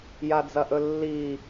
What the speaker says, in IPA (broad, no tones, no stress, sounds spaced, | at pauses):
j a d͡z ɐ ʔ ɵ lː i